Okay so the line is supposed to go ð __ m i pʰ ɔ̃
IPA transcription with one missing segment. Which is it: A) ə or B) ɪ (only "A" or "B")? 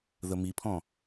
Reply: A